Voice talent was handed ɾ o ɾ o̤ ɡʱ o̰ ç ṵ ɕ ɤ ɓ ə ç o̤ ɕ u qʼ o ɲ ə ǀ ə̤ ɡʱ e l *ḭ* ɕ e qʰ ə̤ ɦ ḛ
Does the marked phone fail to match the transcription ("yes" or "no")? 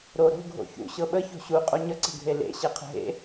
yes